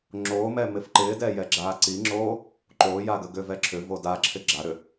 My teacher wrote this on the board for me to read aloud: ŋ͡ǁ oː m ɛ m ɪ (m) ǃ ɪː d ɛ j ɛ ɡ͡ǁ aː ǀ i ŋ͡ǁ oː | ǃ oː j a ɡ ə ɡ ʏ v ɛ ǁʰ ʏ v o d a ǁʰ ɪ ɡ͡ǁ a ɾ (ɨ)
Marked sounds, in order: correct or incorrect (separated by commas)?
incorrect, incorrect